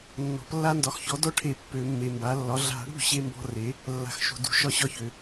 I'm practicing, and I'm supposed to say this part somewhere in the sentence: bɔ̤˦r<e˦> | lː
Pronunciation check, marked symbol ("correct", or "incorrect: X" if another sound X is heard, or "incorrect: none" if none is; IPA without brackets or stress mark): incorrect: e˩˥